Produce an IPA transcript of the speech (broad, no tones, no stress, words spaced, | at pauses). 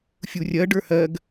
fʲurʲɜ ɖə˞hɜɡ